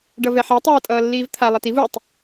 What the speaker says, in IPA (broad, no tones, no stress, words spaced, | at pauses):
ɖʌvɛħe tˤʌːtʼʌːlːiːvt̪ʰa lˠɛtiv utˤ